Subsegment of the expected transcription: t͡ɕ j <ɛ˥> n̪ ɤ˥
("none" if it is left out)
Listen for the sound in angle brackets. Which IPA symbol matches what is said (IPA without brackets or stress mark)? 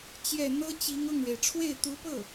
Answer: ɛ˥˩